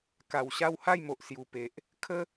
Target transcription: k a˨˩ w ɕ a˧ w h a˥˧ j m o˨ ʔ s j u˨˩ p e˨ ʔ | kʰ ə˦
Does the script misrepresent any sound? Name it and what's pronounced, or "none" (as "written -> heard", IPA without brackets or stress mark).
none